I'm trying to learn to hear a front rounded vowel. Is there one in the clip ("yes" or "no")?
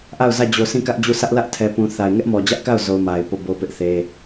no